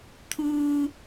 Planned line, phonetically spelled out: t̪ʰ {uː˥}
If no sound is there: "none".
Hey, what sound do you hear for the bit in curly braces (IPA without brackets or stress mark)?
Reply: uː˥